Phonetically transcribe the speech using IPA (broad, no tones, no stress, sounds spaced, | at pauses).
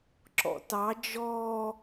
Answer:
ǁ ɔ̰ t ɑ d͡ʒ ɔː